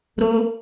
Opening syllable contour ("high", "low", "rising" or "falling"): high